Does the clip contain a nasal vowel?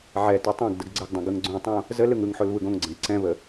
yes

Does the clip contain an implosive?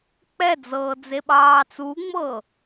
yes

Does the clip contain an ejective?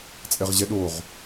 yes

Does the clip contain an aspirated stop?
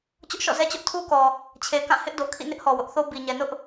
yes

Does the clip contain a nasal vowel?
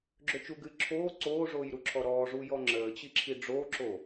no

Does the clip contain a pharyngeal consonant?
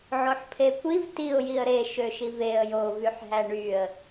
yes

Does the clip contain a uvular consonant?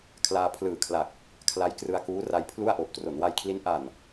no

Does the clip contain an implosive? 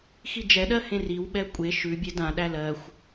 yes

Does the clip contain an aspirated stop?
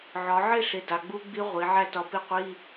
no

